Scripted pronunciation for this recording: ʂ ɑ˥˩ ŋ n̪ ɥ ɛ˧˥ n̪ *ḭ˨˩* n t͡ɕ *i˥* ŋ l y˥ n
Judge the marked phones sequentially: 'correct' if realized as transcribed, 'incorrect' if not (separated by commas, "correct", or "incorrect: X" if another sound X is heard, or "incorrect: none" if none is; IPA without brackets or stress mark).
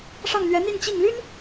incorrect: i˥˧, incorrect: i˥˩